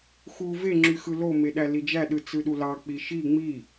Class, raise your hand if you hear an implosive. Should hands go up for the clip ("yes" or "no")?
yes